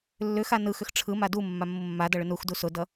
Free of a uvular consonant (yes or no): yes